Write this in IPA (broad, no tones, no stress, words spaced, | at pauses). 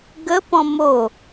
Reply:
ɡəpɔ̃ mo